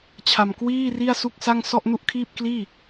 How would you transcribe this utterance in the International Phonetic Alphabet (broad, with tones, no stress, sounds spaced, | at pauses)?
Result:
t͡ɕʰ a˧ m k w iː˥˩ r i˥˩ a̯ s u˥˩ k̚ s a˥˩ ŋ s ɔ˥˩ ʔ n u˥˩ ʔ kʰ iː˥˩ p̚ k l iː˥˩